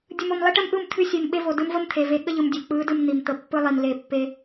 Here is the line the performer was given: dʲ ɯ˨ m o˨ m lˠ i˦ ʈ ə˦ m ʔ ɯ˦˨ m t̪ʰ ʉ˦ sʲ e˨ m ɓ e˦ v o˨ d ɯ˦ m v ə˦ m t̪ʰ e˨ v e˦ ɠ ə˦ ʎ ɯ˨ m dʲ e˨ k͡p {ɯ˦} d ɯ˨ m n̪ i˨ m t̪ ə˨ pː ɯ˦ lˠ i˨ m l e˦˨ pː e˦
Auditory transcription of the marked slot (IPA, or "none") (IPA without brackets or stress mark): ɯ˨˦